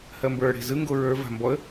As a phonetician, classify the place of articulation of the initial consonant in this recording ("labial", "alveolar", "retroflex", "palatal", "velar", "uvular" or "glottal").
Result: glottal